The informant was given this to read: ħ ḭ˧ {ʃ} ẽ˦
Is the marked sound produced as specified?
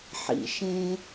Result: yes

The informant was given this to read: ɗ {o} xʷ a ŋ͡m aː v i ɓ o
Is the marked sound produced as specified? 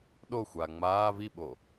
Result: yes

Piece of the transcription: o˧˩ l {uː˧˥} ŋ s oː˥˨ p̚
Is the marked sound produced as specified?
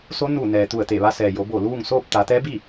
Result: no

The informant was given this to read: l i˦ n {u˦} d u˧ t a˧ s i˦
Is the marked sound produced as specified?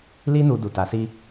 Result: no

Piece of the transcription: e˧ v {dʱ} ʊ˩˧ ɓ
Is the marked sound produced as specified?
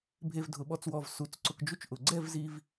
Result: yes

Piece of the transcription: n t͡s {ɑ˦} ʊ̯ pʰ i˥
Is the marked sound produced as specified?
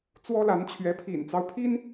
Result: yes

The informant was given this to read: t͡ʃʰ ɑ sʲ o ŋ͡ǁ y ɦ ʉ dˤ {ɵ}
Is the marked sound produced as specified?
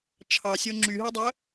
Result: no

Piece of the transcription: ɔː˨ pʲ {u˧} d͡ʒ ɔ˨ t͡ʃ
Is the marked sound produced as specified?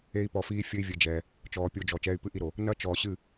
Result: no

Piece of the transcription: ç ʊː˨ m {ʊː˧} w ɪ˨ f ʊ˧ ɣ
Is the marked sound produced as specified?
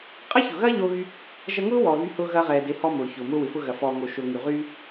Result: yes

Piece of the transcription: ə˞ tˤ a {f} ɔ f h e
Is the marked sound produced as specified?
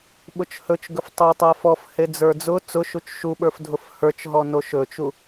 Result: yes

